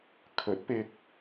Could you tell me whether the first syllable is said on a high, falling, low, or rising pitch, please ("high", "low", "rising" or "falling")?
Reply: rising